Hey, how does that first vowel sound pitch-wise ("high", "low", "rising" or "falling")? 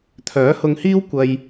rising